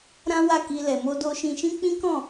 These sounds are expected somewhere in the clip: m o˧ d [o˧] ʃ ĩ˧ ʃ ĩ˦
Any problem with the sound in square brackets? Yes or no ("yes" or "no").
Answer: no